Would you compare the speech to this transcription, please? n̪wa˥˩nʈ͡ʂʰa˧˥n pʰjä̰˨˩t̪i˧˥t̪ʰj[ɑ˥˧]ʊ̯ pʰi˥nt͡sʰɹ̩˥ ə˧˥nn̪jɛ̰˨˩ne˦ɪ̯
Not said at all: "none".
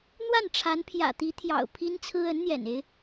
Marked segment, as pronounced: ɑ̰˨˩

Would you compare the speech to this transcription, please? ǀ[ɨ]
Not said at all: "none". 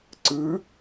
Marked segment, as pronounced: ɨ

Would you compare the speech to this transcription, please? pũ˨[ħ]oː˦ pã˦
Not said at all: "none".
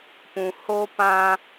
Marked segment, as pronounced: h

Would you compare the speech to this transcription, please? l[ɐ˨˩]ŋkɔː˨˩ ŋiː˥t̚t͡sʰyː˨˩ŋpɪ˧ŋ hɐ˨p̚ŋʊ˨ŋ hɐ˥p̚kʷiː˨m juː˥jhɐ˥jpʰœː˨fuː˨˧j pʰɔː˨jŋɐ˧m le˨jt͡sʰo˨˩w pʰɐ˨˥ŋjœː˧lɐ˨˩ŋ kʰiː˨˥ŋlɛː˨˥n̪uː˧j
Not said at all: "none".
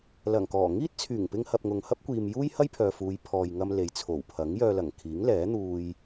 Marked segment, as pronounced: ɐ˨˩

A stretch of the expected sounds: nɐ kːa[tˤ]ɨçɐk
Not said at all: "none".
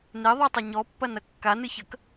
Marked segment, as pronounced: n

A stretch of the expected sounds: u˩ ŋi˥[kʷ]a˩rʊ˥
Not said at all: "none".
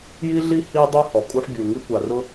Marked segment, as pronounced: kʷ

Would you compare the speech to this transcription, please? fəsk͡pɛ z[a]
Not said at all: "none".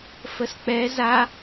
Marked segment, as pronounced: a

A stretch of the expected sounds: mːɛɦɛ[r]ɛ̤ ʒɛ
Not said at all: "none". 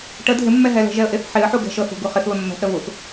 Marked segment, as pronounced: l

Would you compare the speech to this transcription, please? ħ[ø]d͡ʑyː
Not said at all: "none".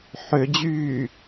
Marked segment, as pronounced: ø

